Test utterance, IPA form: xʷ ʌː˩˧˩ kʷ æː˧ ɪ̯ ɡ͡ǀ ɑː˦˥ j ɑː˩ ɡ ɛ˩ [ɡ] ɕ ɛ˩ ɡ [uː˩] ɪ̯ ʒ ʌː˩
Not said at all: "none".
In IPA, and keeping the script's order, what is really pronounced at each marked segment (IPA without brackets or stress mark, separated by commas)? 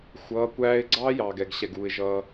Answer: ɡ, uː˩